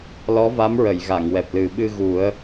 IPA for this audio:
l ɔ˧˥ v a˧˥ m ɹ ə˨˩˨ j ɣ a˨˩˨ ŋ w ɛ˨˩ p̚ l ɨ˨˩ ɓ ɨ˧ ɣ u˨˩˦ ə̯

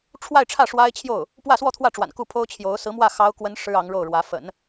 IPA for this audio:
ʈ͡ʂʰ w a˥˧ ɪ̯ ʈ͡ʂʰ ä˥˩ ʂ w a˥ ɪ̯ t͡ɕʰ j o˥˩ ʊ̯ | p w ä˥˧ s w ɔ˥˧ t̪ʰ w ä˥˩ ʈ͡ʂ w a̰˨˩ n k u˥˩ pʰ o˥ ʊ̯ t͡ɕʰ j o˧˥ ʊ̯ s ɹ̩˧˥ m w ä˥˩ x ɑ˥ ʊ̯ k w ə˥ n ʂ ɻ̩˥ ɑ˧˥ ŋ ɻ o˥˩ ʊ̯ ɻ w ä˧˥ f ə̰˨˩˦ n

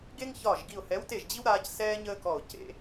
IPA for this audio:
ɡ e˦ ŋ ç ɒː˧˩ ʒ ɡ i˧˩ ʊ̯ h ɛ˨˥ w t e˧˩ ʒ d͡ʑ i˦ w ɾ aː˦ c s ɛː˦ ɲ əː˦ k ɔ˧˩ ʊ̯ c ḛ˦

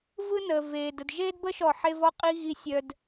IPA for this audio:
v ɯ˦ n əː˨ v eː˨ d ə˨ d ʒ eː˦ d b ə˦ ʃ ɔ˦˨ ħ e˦ v ɔ˦ qʼ i˦ ɣ i˧ sʲ œ˧ d

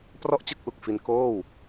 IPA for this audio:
p r ɔ˥˩ ʔ t͡ɕ ɯ˥˩ k̚ ʔ u˨˩ k̚ f i˧ n k oː˥˩ w

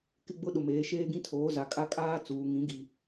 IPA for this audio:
k ɪ˦ ɡ͡b ʊ˦ ɗ ʊ˨ m eː˨˦ ʃ eː˦ ɡ ĩ˦ tʰ oː˨˦ z a˨ kʼ a˦ kʼ aː˦ t͡s uː˨ ŋ ĩ˨˦ ɡ i˨

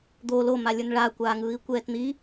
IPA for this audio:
d̪ o l o m a lʲ ə˞ n ɭ a kʷ aː ŋ ɯː i̯ kʷ ɛː t n̪ i

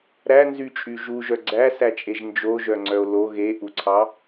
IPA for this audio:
ɾ æ n z y t͡ʃʼ y ʒ u ʒ œ ɡ͡ǀ æ s æ t͡ʃʼ e ʒ n d͡ʒ o ʒ œ ŋ͡ǀ œ o̯ l o ɣ e ʔ u ǀʰ ɑ

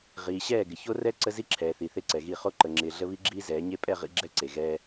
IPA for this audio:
ʁ iː˨ ɕ ɛː˦˨ ɡ ɪ˨ ç o˦ r ɛ˦ ǀ ə˦ z i˦ ǁʰ ɛː˨ θ i˨ θ e˦ ǀ ɛ˨ ɣ i˦˨ χ o˦ ǃ ə˨ ŋ͡ǁ ɪː˨ ɮ ə˦ β i˦ ɡ͡ǁ iː˦ z ɛː˨˦ ɲ e˦ pʼ ɛ˦˨ ʁ ḭ˦ ɡ͡ǁ ɛ˦ ǀ e˨ ɣ ɛː˦

